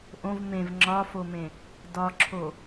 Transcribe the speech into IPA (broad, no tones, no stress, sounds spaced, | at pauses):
ʔ õ v m ẽ v ŋ͡ǁ ɒ f o m ẽ | d ɒ ǁʰ o